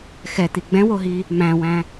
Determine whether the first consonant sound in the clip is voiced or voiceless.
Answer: voiceless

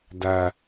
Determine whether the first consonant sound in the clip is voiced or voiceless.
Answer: voiced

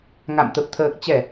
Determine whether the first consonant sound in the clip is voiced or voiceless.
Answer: voiced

